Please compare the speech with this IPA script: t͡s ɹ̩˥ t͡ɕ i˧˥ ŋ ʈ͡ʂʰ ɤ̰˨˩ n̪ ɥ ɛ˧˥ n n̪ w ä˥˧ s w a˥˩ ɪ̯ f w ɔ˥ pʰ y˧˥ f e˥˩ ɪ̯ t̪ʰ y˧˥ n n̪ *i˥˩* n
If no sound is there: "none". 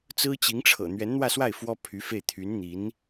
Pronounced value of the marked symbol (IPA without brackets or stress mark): i˧˥